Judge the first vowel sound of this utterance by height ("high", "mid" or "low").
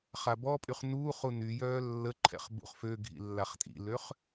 low